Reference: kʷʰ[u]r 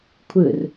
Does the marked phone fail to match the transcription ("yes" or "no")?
yes